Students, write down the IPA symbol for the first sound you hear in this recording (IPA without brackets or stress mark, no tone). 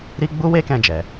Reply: ɾ